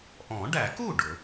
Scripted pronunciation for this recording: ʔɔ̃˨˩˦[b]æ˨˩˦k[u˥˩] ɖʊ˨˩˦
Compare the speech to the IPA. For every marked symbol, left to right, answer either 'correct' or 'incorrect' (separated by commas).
incorrect, correct